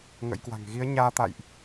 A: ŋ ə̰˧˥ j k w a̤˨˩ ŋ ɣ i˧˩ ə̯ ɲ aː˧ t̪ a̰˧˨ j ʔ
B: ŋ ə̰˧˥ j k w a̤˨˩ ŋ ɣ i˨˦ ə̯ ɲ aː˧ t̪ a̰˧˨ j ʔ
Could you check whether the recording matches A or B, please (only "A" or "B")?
B